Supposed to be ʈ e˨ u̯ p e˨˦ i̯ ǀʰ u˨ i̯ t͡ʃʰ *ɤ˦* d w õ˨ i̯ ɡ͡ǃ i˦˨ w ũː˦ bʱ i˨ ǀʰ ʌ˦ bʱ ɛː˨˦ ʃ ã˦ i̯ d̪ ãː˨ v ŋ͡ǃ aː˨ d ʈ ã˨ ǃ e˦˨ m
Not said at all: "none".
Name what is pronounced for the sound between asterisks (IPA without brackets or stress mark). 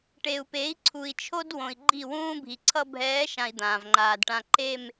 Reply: o˦